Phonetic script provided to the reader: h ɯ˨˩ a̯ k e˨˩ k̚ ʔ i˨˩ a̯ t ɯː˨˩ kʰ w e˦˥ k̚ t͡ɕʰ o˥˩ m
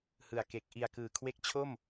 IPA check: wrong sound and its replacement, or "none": t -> k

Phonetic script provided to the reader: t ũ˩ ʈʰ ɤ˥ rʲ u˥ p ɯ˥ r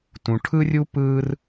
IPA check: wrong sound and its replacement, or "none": ɤ˥ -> ɯ˥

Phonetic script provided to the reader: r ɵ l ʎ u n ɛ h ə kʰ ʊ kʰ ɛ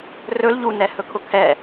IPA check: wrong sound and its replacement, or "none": ə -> ɵ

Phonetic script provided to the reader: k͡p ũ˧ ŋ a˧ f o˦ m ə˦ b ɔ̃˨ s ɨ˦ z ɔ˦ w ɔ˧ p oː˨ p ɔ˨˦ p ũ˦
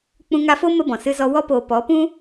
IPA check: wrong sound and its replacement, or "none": none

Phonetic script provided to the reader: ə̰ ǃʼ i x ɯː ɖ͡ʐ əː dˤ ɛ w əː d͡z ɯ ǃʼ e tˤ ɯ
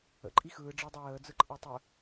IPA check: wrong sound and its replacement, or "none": none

